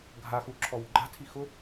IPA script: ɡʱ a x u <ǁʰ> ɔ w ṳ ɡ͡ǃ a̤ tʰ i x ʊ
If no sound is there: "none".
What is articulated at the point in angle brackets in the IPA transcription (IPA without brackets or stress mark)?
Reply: ǁʰ